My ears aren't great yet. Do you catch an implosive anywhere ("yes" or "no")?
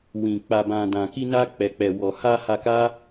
no